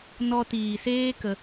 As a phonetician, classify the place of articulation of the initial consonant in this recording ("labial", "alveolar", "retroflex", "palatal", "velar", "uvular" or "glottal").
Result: alveolar